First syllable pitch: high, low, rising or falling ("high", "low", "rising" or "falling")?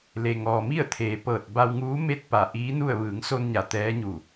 low